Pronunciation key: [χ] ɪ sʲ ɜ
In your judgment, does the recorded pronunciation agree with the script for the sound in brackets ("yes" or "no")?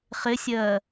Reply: yes